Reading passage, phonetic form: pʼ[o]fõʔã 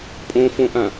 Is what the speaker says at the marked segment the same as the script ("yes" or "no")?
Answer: no